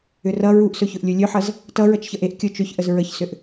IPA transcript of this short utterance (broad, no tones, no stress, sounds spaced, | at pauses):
ʏ r ʌ ɹ u ʔ s ɵ ç ɵ ʔ lʲ u lʲ ɵ ħ ʌ z | t ʌ ɹ ʌ t͡ʃ ç ʌ ʔ e ʔ kʲ o t͡ʃ ɵ ç ʔ ə z ɹ ə ç s ʏ ʔ